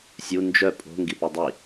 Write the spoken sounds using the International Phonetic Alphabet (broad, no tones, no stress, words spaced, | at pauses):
sʲu nd͡ʒœ pʼo̤ ŋɡipidˤi